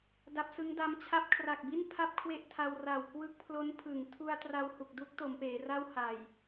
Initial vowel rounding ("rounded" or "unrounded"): unrounded